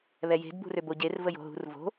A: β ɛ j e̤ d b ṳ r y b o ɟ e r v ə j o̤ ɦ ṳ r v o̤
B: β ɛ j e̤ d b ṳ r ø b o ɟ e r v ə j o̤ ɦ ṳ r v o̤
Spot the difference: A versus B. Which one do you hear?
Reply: B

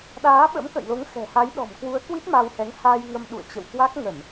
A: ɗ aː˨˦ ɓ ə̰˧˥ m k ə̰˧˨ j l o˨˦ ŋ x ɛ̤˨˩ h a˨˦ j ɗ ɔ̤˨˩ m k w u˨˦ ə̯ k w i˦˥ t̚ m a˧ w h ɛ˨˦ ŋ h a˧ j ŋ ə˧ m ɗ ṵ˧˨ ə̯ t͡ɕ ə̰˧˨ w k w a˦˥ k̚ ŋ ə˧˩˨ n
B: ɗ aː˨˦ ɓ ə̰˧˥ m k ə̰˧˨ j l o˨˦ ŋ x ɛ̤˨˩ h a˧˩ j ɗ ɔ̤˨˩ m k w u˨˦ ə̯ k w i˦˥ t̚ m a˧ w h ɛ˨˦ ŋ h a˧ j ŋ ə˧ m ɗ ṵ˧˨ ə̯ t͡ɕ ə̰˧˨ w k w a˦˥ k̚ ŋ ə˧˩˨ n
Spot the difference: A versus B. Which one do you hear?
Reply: A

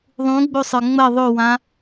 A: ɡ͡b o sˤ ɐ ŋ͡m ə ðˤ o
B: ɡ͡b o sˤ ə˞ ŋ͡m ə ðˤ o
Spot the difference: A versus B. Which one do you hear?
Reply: B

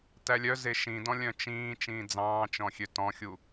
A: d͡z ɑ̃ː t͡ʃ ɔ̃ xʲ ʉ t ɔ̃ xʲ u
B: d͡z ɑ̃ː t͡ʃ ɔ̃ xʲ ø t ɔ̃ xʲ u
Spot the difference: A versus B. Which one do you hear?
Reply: B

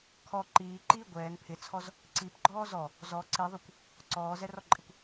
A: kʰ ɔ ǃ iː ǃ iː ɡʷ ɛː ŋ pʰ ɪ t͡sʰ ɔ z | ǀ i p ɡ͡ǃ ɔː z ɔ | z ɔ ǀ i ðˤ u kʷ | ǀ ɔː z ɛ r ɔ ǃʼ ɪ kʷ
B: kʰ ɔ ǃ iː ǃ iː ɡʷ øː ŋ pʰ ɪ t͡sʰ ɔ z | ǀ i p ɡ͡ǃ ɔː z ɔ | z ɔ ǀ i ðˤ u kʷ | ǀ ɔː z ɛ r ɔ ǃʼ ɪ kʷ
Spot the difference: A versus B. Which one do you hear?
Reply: A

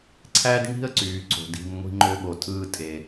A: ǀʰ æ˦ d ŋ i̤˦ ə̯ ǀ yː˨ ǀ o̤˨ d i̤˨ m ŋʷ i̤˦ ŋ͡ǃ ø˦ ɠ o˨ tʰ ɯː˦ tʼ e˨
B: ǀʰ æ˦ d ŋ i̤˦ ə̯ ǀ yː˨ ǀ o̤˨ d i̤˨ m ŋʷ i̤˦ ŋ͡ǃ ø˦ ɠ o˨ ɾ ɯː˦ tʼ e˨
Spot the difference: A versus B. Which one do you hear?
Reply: A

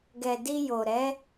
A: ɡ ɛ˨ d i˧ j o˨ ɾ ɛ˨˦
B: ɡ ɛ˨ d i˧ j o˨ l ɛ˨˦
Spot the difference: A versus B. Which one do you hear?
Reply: A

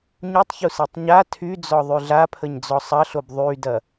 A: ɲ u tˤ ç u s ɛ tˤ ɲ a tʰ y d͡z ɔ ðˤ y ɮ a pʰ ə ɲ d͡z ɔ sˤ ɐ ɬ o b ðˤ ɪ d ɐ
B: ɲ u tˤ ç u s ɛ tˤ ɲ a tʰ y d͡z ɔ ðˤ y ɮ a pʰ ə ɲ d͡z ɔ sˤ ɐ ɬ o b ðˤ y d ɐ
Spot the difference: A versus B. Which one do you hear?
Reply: B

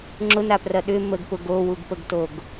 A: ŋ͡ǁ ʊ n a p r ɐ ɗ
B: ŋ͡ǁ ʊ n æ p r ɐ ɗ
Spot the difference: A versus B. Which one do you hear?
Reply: A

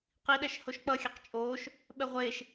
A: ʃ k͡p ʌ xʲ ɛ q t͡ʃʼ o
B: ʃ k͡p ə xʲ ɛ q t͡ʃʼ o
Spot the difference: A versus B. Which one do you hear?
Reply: A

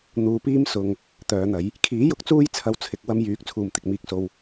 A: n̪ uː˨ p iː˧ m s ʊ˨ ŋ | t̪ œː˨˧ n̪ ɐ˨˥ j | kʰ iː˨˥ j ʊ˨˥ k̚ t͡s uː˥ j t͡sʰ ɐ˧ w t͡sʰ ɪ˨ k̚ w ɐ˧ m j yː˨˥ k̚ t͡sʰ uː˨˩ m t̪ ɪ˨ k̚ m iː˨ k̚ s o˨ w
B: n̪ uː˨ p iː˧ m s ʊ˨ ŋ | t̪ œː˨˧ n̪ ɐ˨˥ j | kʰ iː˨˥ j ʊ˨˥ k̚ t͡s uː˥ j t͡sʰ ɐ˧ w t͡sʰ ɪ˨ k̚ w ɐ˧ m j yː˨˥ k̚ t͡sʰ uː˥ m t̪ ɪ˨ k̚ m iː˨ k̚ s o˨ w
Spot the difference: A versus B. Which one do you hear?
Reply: A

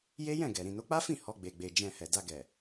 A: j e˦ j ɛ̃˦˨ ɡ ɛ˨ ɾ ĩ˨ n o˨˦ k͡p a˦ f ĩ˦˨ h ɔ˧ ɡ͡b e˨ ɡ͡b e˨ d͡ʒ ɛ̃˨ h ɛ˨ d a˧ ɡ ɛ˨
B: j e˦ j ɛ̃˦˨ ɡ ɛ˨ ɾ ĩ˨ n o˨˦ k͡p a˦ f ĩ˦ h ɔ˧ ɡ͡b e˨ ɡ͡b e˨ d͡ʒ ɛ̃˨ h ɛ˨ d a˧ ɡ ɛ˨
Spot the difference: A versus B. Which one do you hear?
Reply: A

